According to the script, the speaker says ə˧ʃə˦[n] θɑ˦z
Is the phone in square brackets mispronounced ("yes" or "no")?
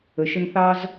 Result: no